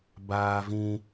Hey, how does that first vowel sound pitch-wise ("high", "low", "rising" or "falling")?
high